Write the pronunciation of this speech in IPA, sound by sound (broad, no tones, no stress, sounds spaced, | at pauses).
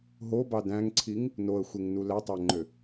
ɦ o b ɑ d æ̃ ŋ ǀʰ i ŋ | n o ə̯ xʷ e ŋ n u l æ tˤ æ ŋ͡ǃ ø